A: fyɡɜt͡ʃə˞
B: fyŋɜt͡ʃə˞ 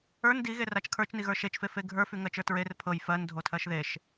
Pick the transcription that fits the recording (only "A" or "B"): B